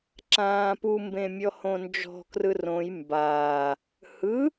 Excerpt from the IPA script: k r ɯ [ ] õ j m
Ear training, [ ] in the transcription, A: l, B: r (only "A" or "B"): B